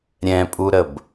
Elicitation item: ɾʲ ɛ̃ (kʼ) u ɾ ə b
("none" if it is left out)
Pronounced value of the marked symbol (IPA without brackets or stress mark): pʼ